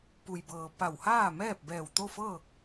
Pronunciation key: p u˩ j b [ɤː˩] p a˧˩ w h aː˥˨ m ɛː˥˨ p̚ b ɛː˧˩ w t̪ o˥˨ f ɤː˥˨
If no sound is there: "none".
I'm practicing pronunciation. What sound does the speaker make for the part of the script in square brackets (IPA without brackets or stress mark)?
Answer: ɤː˩